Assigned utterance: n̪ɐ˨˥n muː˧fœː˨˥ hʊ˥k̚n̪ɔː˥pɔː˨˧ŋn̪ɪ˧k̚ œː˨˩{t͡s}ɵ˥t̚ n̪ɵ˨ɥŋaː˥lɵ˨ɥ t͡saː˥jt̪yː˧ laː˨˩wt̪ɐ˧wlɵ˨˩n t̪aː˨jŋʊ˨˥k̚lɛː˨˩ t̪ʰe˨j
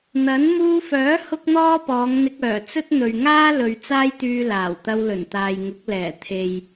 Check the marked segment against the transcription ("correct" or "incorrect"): correct